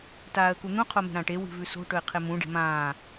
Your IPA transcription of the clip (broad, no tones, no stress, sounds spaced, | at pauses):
t aː ə̯ k u n̪ ũ qʰ o m e̤ ɾ ã ʈ e w i̤ v ʉ s o̤ ʈ ɵ ɪ̯ qʰ e m ũ ɖ e̤ m ãː